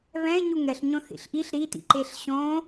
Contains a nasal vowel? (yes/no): yes